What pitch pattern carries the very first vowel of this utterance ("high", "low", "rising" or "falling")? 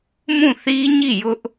falling